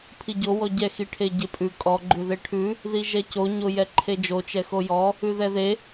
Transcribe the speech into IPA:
pʰ i ɟ o w ɔ ɟ ɛ x i ʈʰ e ɟ e pʼ ʉ kʼ ɔ ɡ͡ǃ ʉ ð e ʈʰ ʉ | ð i ʒ ɛ c o ɲ o j ɛ ǃʰ e d͡ʒ o t͡ʃ ɛ x o j ɔ | ʉ ð ɛ ð e

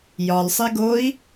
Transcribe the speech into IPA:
j ɒ l sˤ i ɡ o i̯

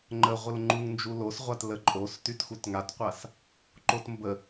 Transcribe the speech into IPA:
ŋ͡ǃ ə ʁʷ ə l ŋ͡ǃ u ŋ n d͡ʒ u l o s ʁʷ a t l ə ǃʼ o s t y t x u t ŋ a t qʷ a s | ǃ o t m b ə

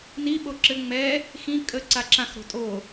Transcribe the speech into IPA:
n i ɓ o ǁ ɘ ŋ͡m ɛ | x ĩ kʼ ə ǀ a ǁ ã x ɾ o̤ tʼ o

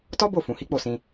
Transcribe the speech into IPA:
t ɔ˦ b o˦˨ f ũ˨ h i˨˦ k͡p o˦˨ s ĩ˧

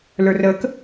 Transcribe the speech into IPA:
l ə˞ r ə k

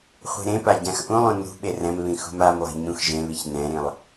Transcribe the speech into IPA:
χʷ i̤ ɾ ẽ p a ɟ ã x ʔ ũ lˠ ũ n ṳ ɓ e r ɛ̃ m β ĩ x ṳ m a m lˠ i̤ ɲ ũ x ʒ ẽ β i ç n ɛ̃ ɾ ĩ lˠ

